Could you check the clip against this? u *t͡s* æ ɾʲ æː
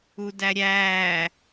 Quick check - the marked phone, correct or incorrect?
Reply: incorrect